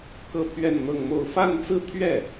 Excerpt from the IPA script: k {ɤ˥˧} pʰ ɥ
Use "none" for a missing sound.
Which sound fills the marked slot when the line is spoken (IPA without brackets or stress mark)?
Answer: ɤ˥˧